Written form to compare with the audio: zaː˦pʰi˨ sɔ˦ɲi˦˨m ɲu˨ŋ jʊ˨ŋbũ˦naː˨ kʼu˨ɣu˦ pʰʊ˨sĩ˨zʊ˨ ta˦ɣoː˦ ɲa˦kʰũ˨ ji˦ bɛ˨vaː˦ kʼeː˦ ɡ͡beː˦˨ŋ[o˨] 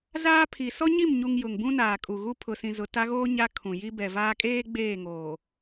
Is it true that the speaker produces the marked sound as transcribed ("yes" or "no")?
no